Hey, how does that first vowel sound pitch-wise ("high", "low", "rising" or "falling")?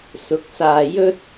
rising